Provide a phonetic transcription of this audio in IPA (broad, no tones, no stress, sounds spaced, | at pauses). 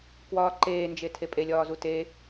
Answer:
k w ɒː ǃ eː n d͡ʒ e tʰ e pʼ e lʲ ɒː z u t e